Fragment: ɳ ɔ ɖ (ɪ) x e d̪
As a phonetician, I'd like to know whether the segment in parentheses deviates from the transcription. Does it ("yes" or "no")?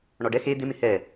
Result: yes